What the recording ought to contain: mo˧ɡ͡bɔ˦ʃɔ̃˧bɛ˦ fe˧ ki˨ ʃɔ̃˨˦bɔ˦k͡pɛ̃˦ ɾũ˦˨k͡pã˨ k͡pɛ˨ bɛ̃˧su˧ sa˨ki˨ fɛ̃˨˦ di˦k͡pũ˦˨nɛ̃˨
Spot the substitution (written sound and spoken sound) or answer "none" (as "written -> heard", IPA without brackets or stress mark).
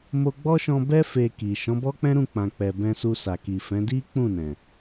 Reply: none